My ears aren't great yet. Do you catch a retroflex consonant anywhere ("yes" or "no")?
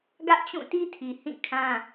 no